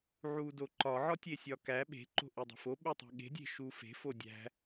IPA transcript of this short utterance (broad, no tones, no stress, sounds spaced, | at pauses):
ʕ u d o ǃ ɒ ʕ ɒ tʲ e sʲ ɒ k æ ɓ e̤ ǃ o̤ ʔ i dˤ o̤ f o ɓ e tˤ i̤ ɠ e̤ dʲ e̤ ʃ u f e̤ f o dʲ æ̤